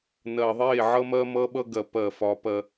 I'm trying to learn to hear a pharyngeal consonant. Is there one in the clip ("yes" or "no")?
yes